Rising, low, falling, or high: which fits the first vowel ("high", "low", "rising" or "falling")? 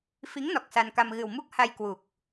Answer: rising